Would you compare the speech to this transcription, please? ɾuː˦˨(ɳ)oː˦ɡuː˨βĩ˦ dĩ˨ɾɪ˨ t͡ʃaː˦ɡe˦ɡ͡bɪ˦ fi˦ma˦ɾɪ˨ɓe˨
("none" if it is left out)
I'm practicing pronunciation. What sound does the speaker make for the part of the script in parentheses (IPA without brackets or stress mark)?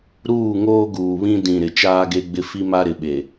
ŋ